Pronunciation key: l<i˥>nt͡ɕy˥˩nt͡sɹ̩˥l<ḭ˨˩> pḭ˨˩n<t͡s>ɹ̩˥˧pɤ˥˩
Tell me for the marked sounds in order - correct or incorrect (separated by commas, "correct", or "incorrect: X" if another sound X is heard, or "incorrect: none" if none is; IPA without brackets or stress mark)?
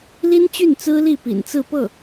correct, incorrect: i˥˩, correct